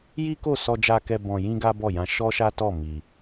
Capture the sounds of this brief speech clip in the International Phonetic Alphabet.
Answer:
j i˦ k o˦˨ s ɔ˧ d͡ʒ a˧ k ɛ˧ b ɔ̃˧ j ĩ˦ ɡ a˦ b ɔ˦˨ j ã˧ ʃ ɔ˦ ʃ a˦ t ɔ˦˨ m i˧

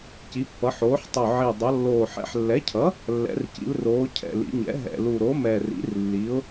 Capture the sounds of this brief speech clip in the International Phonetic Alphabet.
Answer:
c i˩˧ pː ʌ˩˧ ħ oː˩˧ ħ tˤ o˨˩ ʕ i˨˩ dˤ ʌ˩˧ lː oː˨˩ ħ ɛ̰˩˥ ħ lː ɛ˩˥ cʰ ʌ˩˥ | lː ɛ̰˩˧ r c ḭ˩˧ l r oː˩˧ cʰ ɛ̰˨˩ l ḭ˩˧ ɲ ɛ̰˩˥ ɦ ɛ̰˨˩ l u˨˩ ɾ o˩˥ m ɛ˨˩ r ḭ˩˥ r lː i˩˥ ʊ̯

